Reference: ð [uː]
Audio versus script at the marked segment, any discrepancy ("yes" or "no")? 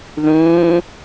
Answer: yes